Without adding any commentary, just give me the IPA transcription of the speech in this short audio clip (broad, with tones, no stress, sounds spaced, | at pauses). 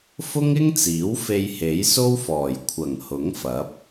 f ʊ˥ ŋ ɪ˥ ŋ t͡s iː˨˥ w f e˧ j h e˨˥ j s o˥ w f ɔː˨˩ j kʷʰ ɐ˨˩ ŋ h ʊ˨˥ ŋ f ɐ˨˥ p̚